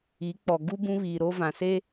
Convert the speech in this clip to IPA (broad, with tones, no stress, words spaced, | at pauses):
i˨˦ k͡pɔ˨ ɡu˦ bũ˦βiː˨ ɾo˦vã˨se˦